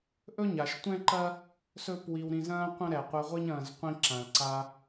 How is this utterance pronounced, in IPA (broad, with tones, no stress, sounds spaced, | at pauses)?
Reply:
ʔ ɵ˦ ɲ a˨ ʃ tʷ ɛ̃˦ ǃ ɐ˦ | s ɵ˦ p w i˧ w ɾ ĩ˧ z ɐ̃ː˦ qʷ ɐ̃˦ ɾ ɛ˨ qʷ ɛ˧ ʁʷ i˦ ɲ ɐ̃ː˧ z qʷ ĩ˧ ǁ ã˨ l ǀ a˧